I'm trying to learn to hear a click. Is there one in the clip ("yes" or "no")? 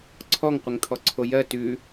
yes